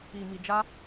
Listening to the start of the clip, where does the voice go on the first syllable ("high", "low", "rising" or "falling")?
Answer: low